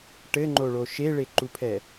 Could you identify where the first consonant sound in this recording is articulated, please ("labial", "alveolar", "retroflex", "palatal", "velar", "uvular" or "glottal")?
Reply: retroflex